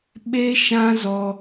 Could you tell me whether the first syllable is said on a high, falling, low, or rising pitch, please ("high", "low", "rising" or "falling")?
high